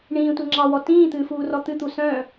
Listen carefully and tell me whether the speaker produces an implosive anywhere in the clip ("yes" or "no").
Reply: no